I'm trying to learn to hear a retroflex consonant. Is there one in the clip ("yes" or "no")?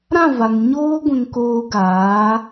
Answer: no